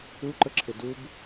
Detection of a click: present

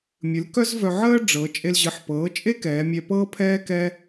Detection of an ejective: present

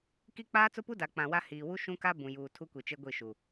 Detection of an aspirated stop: present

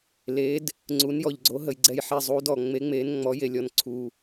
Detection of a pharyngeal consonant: present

